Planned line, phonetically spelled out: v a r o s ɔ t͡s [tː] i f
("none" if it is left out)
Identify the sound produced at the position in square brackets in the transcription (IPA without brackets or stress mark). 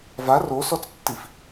tː